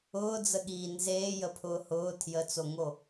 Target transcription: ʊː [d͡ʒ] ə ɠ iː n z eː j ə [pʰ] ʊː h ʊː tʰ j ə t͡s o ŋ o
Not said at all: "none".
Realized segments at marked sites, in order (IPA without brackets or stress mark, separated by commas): d͡z, pʰ